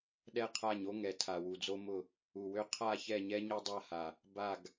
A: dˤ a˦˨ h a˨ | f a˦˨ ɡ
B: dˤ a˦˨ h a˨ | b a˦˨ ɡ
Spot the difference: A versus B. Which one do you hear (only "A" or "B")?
B